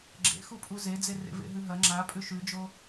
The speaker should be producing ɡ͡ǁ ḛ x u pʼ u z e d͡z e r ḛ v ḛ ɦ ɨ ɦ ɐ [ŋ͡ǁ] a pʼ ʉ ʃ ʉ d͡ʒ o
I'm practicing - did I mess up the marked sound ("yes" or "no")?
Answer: no